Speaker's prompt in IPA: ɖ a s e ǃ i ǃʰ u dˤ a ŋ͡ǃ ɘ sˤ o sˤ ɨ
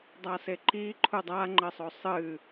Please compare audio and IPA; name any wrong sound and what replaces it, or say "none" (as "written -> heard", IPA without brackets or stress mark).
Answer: ɖ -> dˤ